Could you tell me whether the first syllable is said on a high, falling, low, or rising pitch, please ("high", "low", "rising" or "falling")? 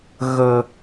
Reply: low